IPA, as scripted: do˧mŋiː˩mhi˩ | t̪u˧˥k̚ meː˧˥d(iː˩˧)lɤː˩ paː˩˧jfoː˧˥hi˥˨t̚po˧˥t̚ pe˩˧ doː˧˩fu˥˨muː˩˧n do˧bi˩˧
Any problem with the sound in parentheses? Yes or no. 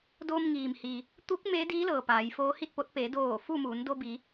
yes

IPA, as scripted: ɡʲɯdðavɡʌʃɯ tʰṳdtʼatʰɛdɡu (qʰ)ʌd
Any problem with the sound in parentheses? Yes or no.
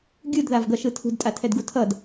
yes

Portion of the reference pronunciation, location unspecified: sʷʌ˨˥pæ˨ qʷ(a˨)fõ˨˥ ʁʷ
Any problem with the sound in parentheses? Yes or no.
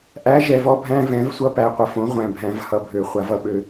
yes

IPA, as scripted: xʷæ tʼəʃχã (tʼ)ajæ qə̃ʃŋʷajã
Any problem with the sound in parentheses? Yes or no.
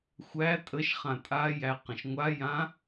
no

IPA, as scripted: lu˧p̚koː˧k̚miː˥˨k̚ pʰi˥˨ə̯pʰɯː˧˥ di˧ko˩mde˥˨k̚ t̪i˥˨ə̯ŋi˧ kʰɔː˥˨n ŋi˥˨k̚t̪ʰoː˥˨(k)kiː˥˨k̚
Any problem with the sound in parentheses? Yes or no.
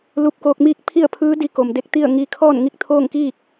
yes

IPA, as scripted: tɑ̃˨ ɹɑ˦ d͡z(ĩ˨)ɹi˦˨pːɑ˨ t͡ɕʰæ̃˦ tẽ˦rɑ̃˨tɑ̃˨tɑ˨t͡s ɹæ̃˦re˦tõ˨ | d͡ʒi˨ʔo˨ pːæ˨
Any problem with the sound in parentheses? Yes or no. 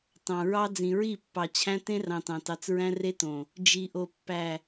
no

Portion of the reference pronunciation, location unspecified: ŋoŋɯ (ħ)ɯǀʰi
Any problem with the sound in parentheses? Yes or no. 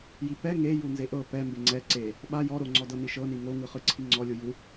yes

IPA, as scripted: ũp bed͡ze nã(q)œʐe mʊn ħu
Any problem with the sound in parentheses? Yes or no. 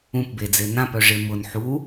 yes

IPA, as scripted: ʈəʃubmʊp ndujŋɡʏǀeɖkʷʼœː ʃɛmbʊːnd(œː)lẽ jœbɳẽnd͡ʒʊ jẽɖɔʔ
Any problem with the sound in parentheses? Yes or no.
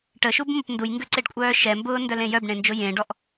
yes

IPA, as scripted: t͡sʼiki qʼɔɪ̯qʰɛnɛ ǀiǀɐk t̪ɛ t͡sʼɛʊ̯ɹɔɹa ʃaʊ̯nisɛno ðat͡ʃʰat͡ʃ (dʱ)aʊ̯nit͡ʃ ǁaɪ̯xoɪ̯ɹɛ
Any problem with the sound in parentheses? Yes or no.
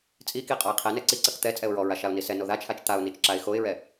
yes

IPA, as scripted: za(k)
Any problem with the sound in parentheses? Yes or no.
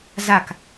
no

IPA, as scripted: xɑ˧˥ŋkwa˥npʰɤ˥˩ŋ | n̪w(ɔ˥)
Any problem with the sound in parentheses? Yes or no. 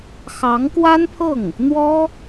no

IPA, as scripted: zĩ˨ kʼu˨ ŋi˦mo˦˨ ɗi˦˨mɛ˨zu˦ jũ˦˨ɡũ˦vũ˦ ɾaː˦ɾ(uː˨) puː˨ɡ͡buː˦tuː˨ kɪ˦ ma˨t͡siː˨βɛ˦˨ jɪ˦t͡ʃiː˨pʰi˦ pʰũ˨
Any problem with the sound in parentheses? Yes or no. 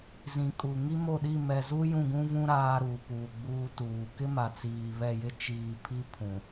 no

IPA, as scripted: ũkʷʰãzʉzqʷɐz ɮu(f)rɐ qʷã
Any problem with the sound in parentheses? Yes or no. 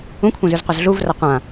yes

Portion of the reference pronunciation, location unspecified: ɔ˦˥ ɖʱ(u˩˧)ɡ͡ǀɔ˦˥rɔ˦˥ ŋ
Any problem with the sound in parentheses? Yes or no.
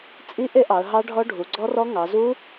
no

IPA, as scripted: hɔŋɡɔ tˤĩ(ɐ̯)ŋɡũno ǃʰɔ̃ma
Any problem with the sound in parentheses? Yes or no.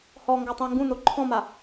no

